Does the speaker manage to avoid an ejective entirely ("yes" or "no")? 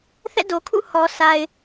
yes